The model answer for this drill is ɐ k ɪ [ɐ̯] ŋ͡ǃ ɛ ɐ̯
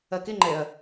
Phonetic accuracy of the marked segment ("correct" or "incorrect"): incorrect